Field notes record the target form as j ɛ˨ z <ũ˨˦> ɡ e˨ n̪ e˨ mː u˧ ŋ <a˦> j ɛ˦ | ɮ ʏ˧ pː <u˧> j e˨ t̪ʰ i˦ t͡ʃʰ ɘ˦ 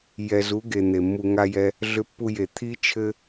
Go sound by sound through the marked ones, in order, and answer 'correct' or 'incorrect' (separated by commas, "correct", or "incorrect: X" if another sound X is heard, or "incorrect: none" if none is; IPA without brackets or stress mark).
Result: incorrect: u˨˦, correct, correct